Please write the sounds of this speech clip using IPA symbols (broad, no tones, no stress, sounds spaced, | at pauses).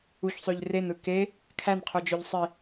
u ç sˤ ø ʎ r e n ɯ k e | kʰ æ n qʰ o d͡ʒ ø ʎ sˤ i